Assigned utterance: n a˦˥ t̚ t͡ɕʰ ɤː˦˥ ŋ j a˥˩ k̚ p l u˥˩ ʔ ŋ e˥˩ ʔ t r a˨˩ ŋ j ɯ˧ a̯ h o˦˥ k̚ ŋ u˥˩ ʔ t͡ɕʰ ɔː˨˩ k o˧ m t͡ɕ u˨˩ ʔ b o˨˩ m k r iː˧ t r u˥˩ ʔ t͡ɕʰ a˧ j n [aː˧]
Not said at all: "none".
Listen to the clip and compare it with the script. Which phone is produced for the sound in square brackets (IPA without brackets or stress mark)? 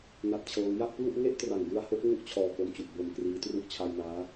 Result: aː˦˥